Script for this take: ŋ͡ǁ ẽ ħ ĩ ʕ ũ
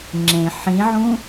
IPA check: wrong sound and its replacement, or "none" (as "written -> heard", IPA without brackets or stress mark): none